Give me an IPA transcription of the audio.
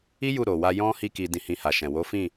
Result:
i˦ j u˦˨ ɾ o˨ w a˧ j ɔ̃˦ h i˧ k i˨ d ĩ˧ h ĩ˧ h a˨ ʃ ɛ̃˨ w o˨˦ f ĩ˦˨

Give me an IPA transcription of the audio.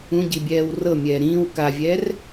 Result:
ũ ɟ i bʲ ɛː w r ɤ mʲ ɛː ɾ ĩː w k a vʲ ɛː r

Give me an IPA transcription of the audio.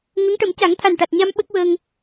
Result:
ŋ ə˧˥ ŋ ʈ ə˨˩˦ m c a˨˩˦ ŋ t̪ʰ a˨˩ n ʈ a˨˩ t̚ ɲ a˧ m ɓ ə˦˥ k̚ w əː˧ ŋ

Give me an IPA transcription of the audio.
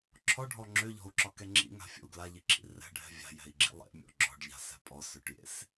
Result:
ǁʰ ɔ ɖʱ ɔ ŋ͡ǁ ø ʎ ɔ̤ u̯ ǁ ɒ k ɛ ŋ͡ǁ ḭ ŋ a̤ fʲ ɔ̰ u̯ ɡ l a ʎ i ǁ ḭ r ɛ̤ ɖʱ ɛ̤ vʲ a̤ j ɛ̤ i̯ ɡ͡ǁ ḭ lˠ ḛ mʲ ɔ̰ ɡ͡ǁ ɔ̤ ɖ ʎ a̤ s ɛ̤ pʼ ɔ s ø ʈ j ḛ s

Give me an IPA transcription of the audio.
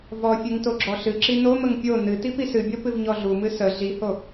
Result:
v ɔ fʲ ɨ ŋ t o ɡ͡ǁ ɔ ɬ ɨ ǁ i n o m ə ŋ pʲ o n ɨ t i p i s ɨ bʲ ɔ p ɨ v ɲ ɔ ɮ u m ɨ s ə ɮ i h o

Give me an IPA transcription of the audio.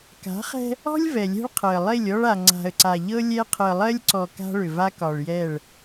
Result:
k a̤˨˦ χ ɛ̤˦ | ɔ̤˦ lʲ v ɛ˨ lʲ ɛ̤˦ ɭ qʰ ɤ˨ ə̯ lˠ e˦˨ lʲ ɔ˦ ɭ a˨ ŋ͡ǀ a̤˨ ə̯ ǀ a˨ ʎ ɤ˦ lʲ ɛ˦ qʰ ɤ˨ lˠ ɜ˦ lʲ ǀ ɔ˨ k a̤˦ ɭ ʏ˨ v a˦ k ɒ˨ ɭ j ɛ˦˨ ɭ

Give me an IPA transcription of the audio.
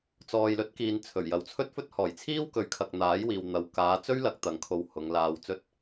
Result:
t͡s ɔː˨ j l ɵ˨˥ t̚ k iː˨ n t͡sʰ ɵ˨˩ ɥ j ɐ˨ w t͡sʰ ɵ˥ t̚ f ɵ˥ t̚ h ɔː˨˩ j t͡sʰ iː˥ w k ɵ˨˥ ɥ kʰ ɐ˨ k̚ n̪ aː˨˥ j w iː˨ w n̪ ɐ˨ w k aː˨˧ t͡s ɵ˥ ɥ l ɐ˨˥ k̚ t̪ ɐ˨˧ ŋ kʰ o˧ w h ʊ˨˧ ŋ l aː˨ w t͡s ɵ˧ t̚

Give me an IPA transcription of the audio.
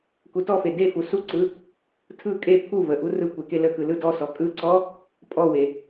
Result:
k u t ɔ f e d e f u s u ǀ ɯ | tʰ ɯ kʼ e pʰ u v ə ʔ u r ɯ kʷ e k e l ə k ɯ l ɯ d ɔ s ɔ kʼ ɯ ǀ ɔ | pʼ ɔ w e

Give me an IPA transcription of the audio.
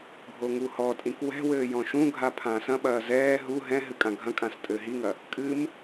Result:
ɡʱ o ŋ u h ɔ tʼ ĩ k w ɛ̤ w ɘː j ɔ̃ ʃ ũ ɡʱ a pʰ ã s ɐ̃ ɓ ɐː z ɛː ɦ u ɦ ɛ̃ ɦ ɨ kʼ ã ɡʱ ɐ̃ kʼ ã s tʼ ɘː ɦ i ŋ ɐ | kʼ ɨ m

